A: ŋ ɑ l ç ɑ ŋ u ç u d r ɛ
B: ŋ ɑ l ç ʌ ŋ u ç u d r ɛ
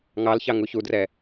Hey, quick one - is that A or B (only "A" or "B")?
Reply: A